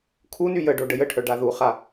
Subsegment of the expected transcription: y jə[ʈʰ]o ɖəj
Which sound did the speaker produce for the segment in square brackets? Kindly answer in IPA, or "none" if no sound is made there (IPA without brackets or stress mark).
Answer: ɖ